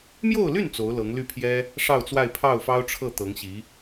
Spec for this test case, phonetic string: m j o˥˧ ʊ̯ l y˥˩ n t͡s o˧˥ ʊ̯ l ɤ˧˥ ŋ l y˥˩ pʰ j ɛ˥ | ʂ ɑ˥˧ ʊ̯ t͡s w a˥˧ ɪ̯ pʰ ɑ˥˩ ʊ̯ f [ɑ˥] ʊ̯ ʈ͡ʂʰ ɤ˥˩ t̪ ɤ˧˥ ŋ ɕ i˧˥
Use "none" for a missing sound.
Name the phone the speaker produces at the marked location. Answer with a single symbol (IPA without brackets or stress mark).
ɑ˥